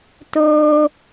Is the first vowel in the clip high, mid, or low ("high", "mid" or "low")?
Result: mid